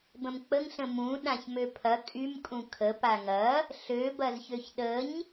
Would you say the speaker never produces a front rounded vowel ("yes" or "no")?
no